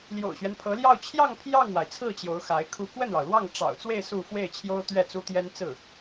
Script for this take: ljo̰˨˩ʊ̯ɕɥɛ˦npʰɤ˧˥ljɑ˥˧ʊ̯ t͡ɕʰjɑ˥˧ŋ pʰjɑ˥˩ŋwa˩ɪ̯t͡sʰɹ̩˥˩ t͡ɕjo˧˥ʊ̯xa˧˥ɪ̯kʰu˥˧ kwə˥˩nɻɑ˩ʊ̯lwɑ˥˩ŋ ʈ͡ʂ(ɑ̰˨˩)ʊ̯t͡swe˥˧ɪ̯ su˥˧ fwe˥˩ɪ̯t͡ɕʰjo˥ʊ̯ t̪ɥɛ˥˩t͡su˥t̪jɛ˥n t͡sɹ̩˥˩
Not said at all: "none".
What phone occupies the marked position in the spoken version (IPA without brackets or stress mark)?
ɑ̰˨˩